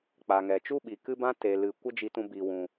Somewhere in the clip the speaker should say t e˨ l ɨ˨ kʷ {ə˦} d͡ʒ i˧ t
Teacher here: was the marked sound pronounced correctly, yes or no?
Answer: yes